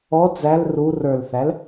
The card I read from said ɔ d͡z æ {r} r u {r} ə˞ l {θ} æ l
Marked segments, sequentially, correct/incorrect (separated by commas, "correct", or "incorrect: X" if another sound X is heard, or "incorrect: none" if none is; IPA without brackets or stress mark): incorrect: l, correct, correct